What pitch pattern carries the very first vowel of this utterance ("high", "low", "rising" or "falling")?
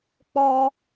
high